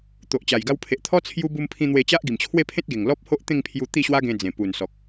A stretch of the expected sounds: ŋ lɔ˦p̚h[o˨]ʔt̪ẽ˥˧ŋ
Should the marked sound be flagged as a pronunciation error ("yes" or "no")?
yes